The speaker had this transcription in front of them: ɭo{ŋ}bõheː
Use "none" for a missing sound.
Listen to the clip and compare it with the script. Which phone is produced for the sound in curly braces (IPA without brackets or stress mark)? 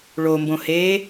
m